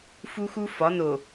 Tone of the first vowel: high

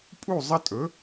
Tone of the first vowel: falling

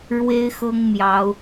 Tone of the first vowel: high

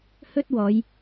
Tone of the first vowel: high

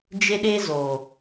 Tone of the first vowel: high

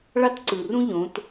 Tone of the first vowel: high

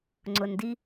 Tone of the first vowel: low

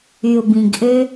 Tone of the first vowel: low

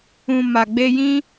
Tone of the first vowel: low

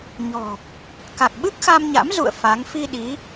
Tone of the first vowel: low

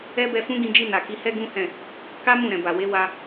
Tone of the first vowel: high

